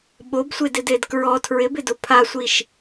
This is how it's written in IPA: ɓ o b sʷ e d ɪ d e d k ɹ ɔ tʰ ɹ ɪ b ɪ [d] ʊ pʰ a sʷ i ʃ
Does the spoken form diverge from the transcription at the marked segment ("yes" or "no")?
no